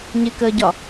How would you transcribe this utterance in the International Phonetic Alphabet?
ɲɪkəːɟɒ

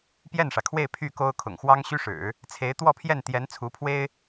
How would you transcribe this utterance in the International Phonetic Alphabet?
pjɛ˥˩nʂä˩kʰwe˥˧ɪ̯ pʰy˥˩ko˥ʊ̯ kʰʊ̰˨˩ŋxwɑ˥ŋ ɕy˥ʂɻ̩˨˩˦ | t͡sʰe˧˥ɪ̯t̪wɔ˥˧pʰjɛ˥˩n t̪jɛ˧˥n t͡sʰu˧˥pʰwe˥ɪ̯

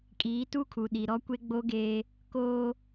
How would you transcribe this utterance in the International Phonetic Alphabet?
kʼiː˨˦tu˦kʰu˨ ɗi˨ɾɔ˦kʷe˦ ɡ͡bo˦ɡeː˦ | koː˦

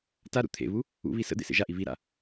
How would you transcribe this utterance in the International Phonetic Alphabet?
taɾṵ t̪ʰḛβu | ṵβi sə̰ d̪ḛsḛʒaʔi βiɾa̰

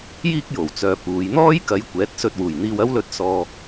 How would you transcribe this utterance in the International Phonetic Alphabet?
jiː˥k̚jo˨˩w t͡sœː˨puː˨˧j n̪ɔː˥jkɐ˨˧j kʷɛː˨˥t̚sɵ˧t̚wuː˨˩jn̪iː˧w ɐ˥wlɵ˧t̚ sɔː˨

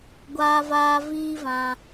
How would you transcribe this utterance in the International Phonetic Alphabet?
ɡʷaː˧vaː˧viː˦vã˧

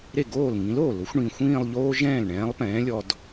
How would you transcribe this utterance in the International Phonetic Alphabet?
ɾe˥˩ɡoː˥˩l ŋĩ˨˥loː˥˩lʊ˨˥xʷɳĩ˨˩ xʷĩː˥˧lˠʎoː˥ ʒɛ̃ː˥˩lɳɛ̃ː˨˥lˠpɛ̃ː˨˥lʲɔ˧d

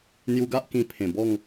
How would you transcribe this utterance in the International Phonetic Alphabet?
n̪ju˧ɡa˦ʔ kĩ˧pʰẽ˨˩bɔ˥˧ŋ

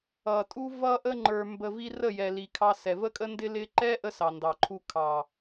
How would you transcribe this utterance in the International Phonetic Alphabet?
ʌ˨tʼu˦ vʌ˧ ʔə˧ŋ͡ǃə˞˨ mbə˨vi˧ rə˦˨jɛ˨li˨ kʰɑ˧sɛ˨və˦kʼə˦ ndɪ˦lɪ˦ ǃɛ˦ ʔə˦sɑ˨ndɑ˨ǃʰu˧ kʰɑ˨

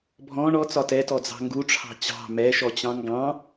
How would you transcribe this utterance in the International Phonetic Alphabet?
bʱɔ̃ ɳɔt͡sɒ tɛtɔd͡zɑ̤ ŋɡuʈ͡ʂʰɑ̤ t͡ɕɑ̤ mɛʃɔt͡ɕɑ̃ ŋɡɑ̃

